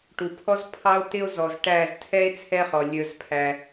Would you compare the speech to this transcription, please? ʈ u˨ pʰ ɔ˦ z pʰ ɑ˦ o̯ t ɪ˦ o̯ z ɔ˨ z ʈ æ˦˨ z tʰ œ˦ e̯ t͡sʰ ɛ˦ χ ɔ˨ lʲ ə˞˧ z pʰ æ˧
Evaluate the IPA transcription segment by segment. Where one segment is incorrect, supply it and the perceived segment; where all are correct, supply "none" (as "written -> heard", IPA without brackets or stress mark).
œ˦ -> ɛ˦